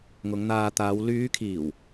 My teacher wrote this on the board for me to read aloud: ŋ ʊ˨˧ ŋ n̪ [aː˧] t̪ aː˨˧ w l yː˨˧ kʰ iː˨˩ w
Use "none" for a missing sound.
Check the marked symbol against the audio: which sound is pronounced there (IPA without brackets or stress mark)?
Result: aː˧